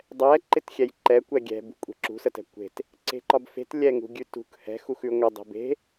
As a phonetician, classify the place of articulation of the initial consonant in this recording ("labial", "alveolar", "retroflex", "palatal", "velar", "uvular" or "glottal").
alveolar